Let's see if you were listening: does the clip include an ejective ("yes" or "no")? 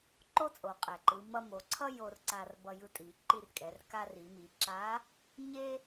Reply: yes